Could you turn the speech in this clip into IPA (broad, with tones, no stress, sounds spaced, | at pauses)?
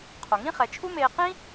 qʰ o˩ ŋ ĩ˥ χ ɛ˩˧ t͡ʃʰ u˥ m eː˧ q ĩ˥